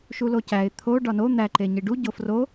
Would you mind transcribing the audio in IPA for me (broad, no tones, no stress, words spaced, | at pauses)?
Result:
ʃulocæɪ̯ t̪ʰo ɖɒno n̪æ ǃeɲiɖu ɟofro